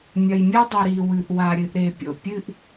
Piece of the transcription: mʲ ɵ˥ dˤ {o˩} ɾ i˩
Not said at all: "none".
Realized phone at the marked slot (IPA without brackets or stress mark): o˩